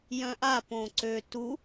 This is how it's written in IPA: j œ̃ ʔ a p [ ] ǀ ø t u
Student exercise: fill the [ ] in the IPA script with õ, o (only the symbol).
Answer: õ